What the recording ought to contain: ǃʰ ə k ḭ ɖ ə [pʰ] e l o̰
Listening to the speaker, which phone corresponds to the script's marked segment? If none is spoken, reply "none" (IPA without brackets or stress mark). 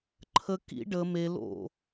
m